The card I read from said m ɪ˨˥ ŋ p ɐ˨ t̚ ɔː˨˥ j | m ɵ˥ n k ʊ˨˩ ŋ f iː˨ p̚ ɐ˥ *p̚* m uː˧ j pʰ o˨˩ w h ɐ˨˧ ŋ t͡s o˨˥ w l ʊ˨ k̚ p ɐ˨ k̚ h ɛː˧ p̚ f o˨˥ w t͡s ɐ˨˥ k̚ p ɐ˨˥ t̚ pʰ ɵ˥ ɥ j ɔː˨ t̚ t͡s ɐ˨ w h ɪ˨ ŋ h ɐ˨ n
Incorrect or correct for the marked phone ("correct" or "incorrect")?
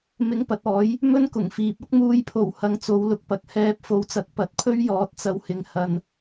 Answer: incorrect